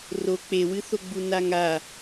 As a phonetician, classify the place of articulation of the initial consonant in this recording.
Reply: alveolar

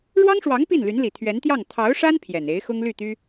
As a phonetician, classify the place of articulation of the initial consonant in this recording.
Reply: retroflex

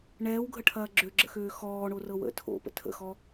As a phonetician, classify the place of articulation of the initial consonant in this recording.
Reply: retroflex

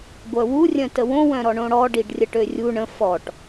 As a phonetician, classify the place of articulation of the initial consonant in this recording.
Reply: velar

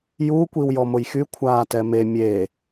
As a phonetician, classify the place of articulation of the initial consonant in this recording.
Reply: palatal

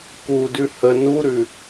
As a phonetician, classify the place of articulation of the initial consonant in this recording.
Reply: velar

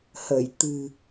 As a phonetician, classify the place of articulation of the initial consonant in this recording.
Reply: glottal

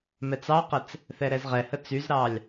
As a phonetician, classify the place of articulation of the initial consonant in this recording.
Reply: labial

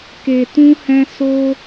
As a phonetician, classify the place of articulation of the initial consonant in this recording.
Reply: velar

